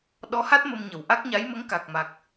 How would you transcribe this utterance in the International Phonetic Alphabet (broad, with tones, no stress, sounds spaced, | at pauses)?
ɗ ɔ˧˥ h a˦˥ t̚ m ə˧ m ɲ ə˨˩ w ʔ a˦˥ k̚ ɲ a˧˥ j m ə˧˥ ŋ k a˨˩ k̚ m a˨˩ k̚